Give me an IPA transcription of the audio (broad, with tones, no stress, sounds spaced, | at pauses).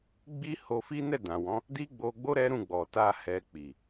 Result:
ɡ͡b i˦ h o˧ f i˦ n ɛ˦˨ d ã˨ w ɔ̃˨˦ | d i˦ ɡ͡b o˧ ɡ͡b o˦ ɾ ɛ˦ ɾ ũ˦˨ ɡ͡b ɔ˨ t a˧ h ɛ˧ k͡p i˨